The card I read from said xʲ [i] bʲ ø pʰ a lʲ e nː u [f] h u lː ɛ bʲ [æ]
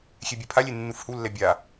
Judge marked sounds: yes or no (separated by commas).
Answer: no, yes, no